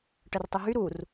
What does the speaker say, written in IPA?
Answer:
ʈ ə r tˤ y ɦ y ɾ u r

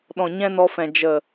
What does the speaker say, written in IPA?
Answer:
ɗ ɔ̃˨ ɲ ɛ̃˦ n ɔ˧ f ɛ̃˨ d͡ʒ ə˨

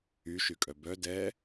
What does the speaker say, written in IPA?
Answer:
y ʃ y kʼ œ b œ d ɛ

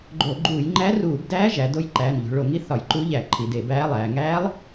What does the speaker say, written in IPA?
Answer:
ɡ͡ǃ o˧˩˧ ɡ͡ǃ uː˧˩˧ j ŋ͡ǃ æ˧˥ r uː˧˩˧ b d æː˧˥ ʒ æ˩˧ d o˧˥ j ǃ æː˩˧˩ n ʎ o̤˩˧ ɭ o˧˩˧ ŋ i˧˥ θ ɒ˧˩˧ j ǃ u˧˥ ʎ æ˧˩˧ ǃʰ i˩˧ d e˧˩˧ b æː˧˥ lˠ æː˩˧ ŋ æː˧˥ lˠ

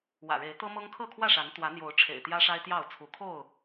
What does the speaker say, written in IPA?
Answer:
w ä̰˨˩ ɻ e˨˦ ɪ̯ t̪ ɤ˦ m ɤ˦ ŋ kʰ ɤ˥˨ kʰ w ä˥˨ ʂ a˨˦ n t̪ w ä˨˦ n̪ j o˨˦ ʊ̯ ʈ͡ʂʰ ḛ˨˩ ɪ̯ t̪ j ä˦ ʂ a˦ ɪ̯ t̪ j ɑ˥˨ ʊ̯ t͡sʰ u˨˦ kʰ o˥˨ ʊ̯

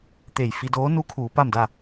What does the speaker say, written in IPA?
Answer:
t̪ e˧˩ j f i˧ d oː˧˥ n u˧˥ kʰ uː˩˧ p a˥˨ m d a˥˨

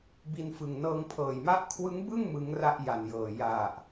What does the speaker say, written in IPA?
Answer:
b i˧ n f ɯ˨˩ ŋ n ɤː˧ ŋ pʰ ɤː˨˩ j m a˥˩ ʔ kʰ w ɯ˦˥ ŋ b ɯ˥˩ ŋ m ɯ˦˥ ŋ r a˥˩ ʔ j a˨˩ n j ɤː˨˩ j a˨˩ ʔ

